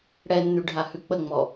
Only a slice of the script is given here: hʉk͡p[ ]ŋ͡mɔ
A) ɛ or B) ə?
B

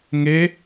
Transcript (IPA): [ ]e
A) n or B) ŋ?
B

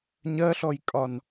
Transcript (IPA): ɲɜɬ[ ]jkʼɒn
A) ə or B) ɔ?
B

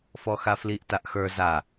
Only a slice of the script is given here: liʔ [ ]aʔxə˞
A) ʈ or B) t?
B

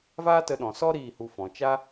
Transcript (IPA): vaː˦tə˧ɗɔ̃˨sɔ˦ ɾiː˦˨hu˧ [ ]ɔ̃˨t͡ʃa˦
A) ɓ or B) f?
B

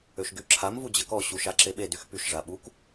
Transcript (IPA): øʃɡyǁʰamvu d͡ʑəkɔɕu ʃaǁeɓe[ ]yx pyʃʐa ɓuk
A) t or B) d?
B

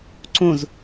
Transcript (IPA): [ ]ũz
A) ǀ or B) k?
A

